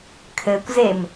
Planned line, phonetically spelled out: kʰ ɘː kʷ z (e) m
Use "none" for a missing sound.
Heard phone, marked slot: e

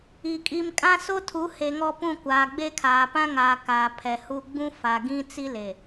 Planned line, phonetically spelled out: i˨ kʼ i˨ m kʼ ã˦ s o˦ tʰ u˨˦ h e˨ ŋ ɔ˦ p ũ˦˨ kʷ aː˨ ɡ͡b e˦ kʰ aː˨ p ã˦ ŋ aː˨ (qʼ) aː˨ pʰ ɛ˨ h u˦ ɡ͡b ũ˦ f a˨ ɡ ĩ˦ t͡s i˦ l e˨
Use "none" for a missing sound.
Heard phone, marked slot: k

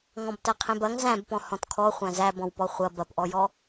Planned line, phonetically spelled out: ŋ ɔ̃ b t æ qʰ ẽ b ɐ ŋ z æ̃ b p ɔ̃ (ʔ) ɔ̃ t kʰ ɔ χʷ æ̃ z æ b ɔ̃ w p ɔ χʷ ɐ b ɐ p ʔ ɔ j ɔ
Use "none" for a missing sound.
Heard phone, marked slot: h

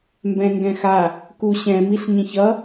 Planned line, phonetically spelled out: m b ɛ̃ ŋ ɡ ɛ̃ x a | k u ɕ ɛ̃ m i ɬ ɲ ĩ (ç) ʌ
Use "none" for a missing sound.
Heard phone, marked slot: ç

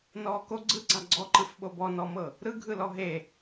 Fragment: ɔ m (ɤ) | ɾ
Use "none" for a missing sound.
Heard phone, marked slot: ɤ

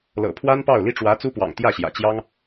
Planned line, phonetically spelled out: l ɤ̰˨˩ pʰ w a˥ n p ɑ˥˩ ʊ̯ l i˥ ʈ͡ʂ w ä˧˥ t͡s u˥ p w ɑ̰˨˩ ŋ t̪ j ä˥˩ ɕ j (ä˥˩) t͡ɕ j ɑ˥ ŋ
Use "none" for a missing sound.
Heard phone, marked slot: ä̰˨˩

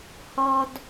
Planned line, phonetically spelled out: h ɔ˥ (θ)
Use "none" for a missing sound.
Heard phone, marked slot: d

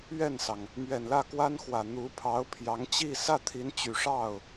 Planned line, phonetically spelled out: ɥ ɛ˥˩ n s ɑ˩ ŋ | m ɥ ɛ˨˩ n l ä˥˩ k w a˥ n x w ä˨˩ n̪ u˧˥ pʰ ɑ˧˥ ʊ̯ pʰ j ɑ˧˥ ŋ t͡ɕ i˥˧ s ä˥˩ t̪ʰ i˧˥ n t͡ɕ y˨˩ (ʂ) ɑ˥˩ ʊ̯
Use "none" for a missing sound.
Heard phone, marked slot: ʂ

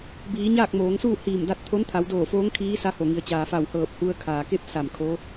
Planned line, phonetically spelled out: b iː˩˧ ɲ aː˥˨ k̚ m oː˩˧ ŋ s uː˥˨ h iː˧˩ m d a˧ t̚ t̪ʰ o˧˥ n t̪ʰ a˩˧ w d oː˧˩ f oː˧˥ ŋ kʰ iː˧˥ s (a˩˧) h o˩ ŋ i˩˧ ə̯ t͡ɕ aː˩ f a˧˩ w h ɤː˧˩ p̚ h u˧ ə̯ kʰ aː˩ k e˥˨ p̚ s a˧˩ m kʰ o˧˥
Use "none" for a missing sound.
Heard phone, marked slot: a˧˥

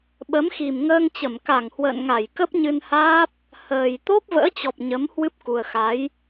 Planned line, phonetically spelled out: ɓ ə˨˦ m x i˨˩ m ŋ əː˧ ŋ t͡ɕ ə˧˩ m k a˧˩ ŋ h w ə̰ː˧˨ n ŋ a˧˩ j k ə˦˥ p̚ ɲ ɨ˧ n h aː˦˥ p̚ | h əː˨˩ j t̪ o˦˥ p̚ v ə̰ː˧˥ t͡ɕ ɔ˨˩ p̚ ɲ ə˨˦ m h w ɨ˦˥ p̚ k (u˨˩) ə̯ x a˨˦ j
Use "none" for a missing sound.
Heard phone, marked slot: u˨˩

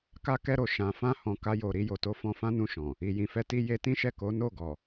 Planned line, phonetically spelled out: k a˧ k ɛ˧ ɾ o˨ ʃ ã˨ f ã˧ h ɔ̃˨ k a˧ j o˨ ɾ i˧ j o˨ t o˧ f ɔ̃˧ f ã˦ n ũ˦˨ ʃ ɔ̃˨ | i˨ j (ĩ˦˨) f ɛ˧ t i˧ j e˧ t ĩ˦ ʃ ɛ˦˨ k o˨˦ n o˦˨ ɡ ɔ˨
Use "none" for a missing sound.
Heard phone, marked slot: ĩ˨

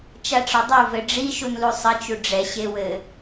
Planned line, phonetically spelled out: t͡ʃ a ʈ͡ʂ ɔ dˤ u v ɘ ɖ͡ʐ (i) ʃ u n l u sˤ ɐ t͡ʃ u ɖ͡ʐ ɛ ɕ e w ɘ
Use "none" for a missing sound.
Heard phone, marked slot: i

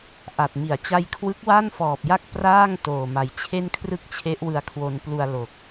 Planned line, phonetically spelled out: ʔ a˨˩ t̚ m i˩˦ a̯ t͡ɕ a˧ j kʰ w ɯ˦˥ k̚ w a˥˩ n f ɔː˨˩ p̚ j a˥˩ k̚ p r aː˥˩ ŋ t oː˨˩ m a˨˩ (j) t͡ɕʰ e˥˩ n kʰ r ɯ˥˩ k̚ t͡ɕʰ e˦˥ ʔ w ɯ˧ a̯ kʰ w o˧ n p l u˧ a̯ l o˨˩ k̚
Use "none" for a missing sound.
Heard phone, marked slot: j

